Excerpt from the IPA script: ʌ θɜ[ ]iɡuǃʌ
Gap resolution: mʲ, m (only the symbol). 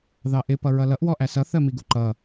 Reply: m